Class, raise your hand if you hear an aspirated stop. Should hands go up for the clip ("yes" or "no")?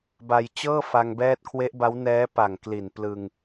yes